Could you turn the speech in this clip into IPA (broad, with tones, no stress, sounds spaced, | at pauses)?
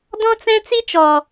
d ɔ̃˦ t͡s ɛ̃˦ t͡s i˦ t͡ʃ ɔ˨